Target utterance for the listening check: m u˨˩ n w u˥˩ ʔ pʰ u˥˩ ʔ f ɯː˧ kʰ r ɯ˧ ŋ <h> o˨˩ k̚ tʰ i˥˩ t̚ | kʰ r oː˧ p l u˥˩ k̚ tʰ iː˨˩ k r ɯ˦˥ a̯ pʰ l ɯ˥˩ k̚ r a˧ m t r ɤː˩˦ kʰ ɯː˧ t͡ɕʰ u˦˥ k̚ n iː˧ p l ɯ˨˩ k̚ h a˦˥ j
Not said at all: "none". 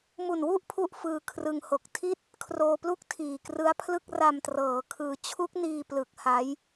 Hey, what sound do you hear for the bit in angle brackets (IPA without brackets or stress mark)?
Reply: h